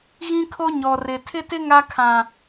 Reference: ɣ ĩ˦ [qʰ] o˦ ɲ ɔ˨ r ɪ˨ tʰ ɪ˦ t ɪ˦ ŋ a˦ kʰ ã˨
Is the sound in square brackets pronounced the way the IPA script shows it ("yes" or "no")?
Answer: no